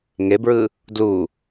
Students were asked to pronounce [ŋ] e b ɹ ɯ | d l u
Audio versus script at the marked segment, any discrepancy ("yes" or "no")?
no